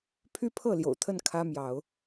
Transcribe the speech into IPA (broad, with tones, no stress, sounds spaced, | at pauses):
pʰ y˦ pʰ ɤ˥˨ l j o̰˨˩ ʊ̯ t̪ʰ ə˥˨ n kʰ ä˦ m j ɑ˨˦ ʊ̯